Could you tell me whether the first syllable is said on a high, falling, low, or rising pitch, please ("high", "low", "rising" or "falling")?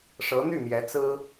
rising